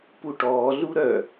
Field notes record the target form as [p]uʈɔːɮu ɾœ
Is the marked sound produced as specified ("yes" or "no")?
yes